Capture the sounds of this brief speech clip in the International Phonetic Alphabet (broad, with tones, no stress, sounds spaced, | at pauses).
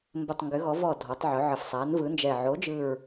m b ə˨˩ tˤ ŋ ɡ ʏ˩˧ ɣ ɔ˩˧ v ɔ˨˩ dʱ ɔ˩˧ tˤ ʕ ɵ˩˧ ʕ ə˨˩ f sˤ a˩˧ n v ɯ˩˧ n d͡ʒ ɛ˨˩ ʕ o˩˧ d͡ʒ ɯ˨˩ ɹ